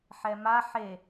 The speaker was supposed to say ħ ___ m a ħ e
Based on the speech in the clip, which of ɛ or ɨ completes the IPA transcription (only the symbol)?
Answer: ɛ